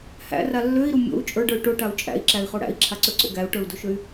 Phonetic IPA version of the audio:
h æ̰ r a lː ø i̯ ɾ u mʲ o̰ u̯ t͡ʃʼ ə˞ ɖ ə˞ y̯ ʈ o ʈ a u̯ t͡ʃʼ æ̰ i̯ ǁ æ i̯ χ o ɽ æ̰ i̯ ǁʰ a ǀ ø ǀ o̰ ɡ æ u̯ ʈ ə˞ u̯ d o ʃ ø y̯

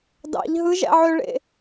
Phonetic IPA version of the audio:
d ɑ̰ ʎ ɦ ɯ ʒ æ̰ ʕ ø ɭ ḛ

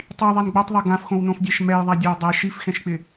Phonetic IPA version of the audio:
tˤ i ðˤ ɛ n ɡ͡b o tˤ ðˤ ɛ ɡ ã f x õ w n õ f dʲ a ʃ m ɛ j ðˤ a dʲ ɛ w dˤ ɛ ʃ i f x ɛ̃ ʃ k͡p ɪ

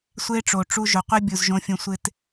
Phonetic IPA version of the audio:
sʷ e˦ ʈ͡ʂ o˨ ʈ͡ʂ u˧ ʒ ʊ˨ qʷ i˦ bʲ u˨ z ʒ õ˦ fʲ ũ˧ sʷ ɪ˦ t

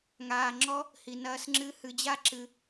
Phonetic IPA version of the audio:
ŋ aː˧ ŋ͡ǁ ɔ˥ | h i˧ n ɐː˥ s ŋ͡ǁ ɨ˥ h ɨ˧ d͡ʑ a˥ ǁ ɨ˧

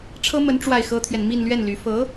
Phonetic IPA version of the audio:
ʈ͡ʂʰ ɤ˥ m ə˧˥ n ʈ͡ʂ w a˥˩ ɪ̯ x ɤ˥ t̪ʰ ɥ ɛ˨ n m i˥˧ n l ɥ ɛ˥˩ n l y˧˥ f ɤ˧˥

